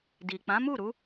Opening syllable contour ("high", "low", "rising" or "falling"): low